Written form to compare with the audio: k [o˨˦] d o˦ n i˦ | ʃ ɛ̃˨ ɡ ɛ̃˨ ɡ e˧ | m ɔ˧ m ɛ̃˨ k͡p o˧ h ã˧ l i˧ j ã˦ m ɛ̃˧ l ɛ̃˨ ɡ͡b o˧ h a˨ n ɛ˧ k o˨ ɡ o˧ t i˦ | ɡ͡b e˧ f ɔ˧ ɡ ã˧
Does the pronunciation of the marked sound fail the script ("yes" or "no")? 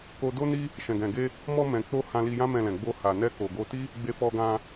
yes